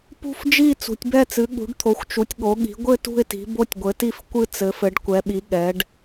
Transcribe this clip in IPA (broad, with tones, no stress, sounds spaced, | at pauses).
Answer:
p ṳ˦˨ f d͡ʒ i˦˨ t͡s ṳ˩˧ tʲ b ɛ˦˨ t͡s ɨ˩˧ ɠ ṳ˩˧ ɖ t̪ʰ o˩˧ xʷ t͡ʃ u˩˧ tʲ ɠ o˩˧ ɠ i̤˩˧ ɡʷ ɘ˦˨ t ṳ˦˨ ɪ̯ t i̤˩˧ b o˦˨ tʲ ɡʷ ɘ˩˧ t i˦˨ f kʷ ɨ˦˨ t͡s ɘ˩˧ f ɘ˩˧ ɖ kʷ ɛ˩˧ ɓ i˩˧ ɠ ɛ˩˧ ɖ